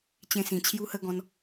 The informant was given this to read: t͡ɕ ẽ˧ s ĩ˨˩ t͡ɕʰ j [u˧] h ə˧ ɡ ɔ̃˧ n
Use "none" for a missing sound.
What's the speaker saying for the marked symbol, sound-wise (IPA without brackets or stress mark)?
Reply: u˧